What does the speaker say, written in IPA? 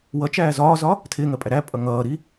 wʌt͡ʃæː zɒːzɒ | tʰɪːŋɜpʼæ ɾæpʼʌ ŋʌːɾi

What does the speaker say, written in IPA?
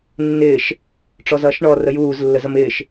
nːɪːʃ | ʈ͡ʂɔzʌːʃɳɔ rəjuːz lːəzʌmɪːʃ

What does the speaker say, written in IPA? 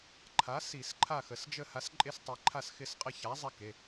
ǃʰa˨˥ si˧˩˧sǃʰa˦˨xə˩˧sd͡ʒə˦˨ ha˨˥sǃʼe˦˨stˤi˩˧ ǃʰa˦˨sxɪ˦˨sqʼə˦˨ ça˨˥zˤɛ˦ ke˩˧˩

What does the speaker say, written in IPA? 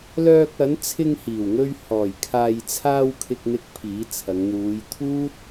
lœː˧k̚ɐ˨˥nt͡sʰɪ˧ŋhiː˨˩w ŋɵ˧ɥ hɔː˨˩jkʰaː˨jt͡sʰaː˧w kʰɪ˧k̚n̪ɪ˧k̚ pʰiː˨˥t͡sʰɐ˨˧ŋ n̪uː˨˧jt̪ʰuː˥t̚

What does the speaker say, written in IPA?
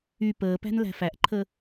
y pəːpæ̤n læ̤fæʔǃʰə

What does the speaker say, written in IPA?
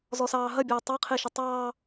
zɔsɑːɦɐbʲɐː tˤɑqʰeʃɐ tˤɑː

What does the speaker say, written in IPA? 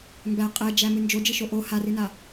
mbæ qʼɛd͡ʒæ mɨnd͡ʒod͡ʒɨʃo ʔo harɨna

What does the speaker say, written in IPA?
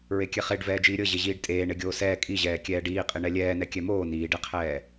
ɹekʲɛχeɖ vɛːd͡ʒiːɾʲɤ ʑeʑiːɖtʼeː ɳeɡʲoːsɛː kʼiʑɛː kʲɛːɖiːqʼi ɳɛlʲɛːnɛ kʲɛmoː niːɖeqʰɛː

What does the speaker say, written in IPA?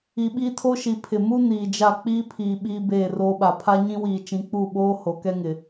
i˨ɓiː˦tʰo˦ʃi˨ pʰɪ˨ mu˦ niː˨d͡ʒa˦˨ k͡piː˦pʰiː˨ ɓiː˦beː˦˨roː˦ɓa˨ pʰa˦ɲĩ˦wiː˨t͡ʃĩ˨˦ k͡pu˦˨ɓoː˦ ho˨kɛ˦ŋɪ˨

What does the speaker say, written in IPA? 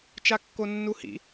t͡ʃakːonːuhḭ

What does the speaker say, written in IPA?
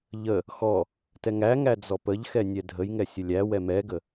ʎə | xɔ | tɛŋæŋæ d͡zɔpəʎxɛ nʲɛdʱəjŋɛ sʲəlʲæwɛ mɛɡə

